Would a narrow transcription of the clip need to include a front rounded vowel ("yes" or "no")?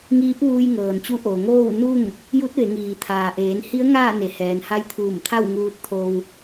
no